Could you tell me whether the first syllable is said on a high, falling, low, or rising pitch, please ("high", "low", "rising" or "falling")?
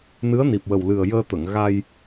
rising